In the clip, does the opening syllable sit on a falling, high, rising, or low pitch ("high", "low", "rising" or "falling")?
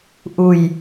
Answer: low